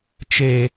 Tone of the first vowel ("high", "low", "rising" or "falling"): low